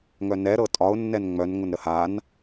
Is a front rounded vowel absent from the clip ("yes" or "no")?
no